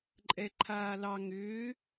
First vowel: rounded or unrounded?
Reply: unrounded